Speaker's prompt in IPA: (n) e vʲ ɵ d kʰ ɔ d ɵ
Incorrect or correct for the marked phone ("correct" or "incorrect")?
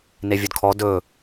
correct